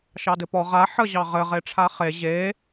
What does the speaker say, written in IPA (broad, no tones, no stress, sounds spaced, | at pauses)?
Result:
ʃ ɑ d ɘ p ɔ ʁ a ħ ə ʑ ɑ ʁ ɘ ʁ e ʈ͡ʂʰ a χ e ʑ e